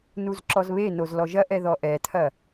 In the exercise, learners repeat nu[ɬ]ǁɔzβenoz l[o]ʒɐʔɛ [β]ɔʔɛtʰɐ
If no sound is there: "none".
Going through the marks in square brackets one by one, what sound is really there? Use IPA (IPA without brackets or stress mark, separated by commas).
z, ɔ, ð